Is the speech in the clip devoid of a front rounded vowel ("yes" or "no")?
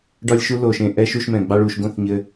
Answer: yes